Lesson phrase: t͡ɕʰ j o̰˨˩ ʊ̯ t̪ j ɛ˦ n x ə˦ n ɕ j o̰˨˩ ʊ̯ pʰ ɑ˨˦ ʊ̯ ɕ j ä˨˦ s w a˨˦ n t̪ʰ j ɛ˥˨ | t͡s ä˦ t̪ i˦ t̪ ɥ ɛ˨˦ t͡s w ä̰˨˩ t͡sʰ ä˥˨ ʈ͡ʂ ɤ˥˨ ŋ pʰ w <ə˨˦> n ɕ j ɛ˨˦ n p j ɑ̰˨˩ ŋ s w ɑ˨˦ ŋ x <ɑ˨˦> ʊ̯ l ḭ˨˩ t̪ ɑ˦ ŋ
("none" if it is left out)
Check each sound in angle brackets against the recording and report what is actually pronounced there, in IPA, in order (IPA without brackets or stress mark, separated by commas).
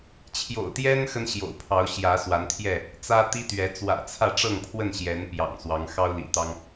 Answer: ə˥˨, ɑ˦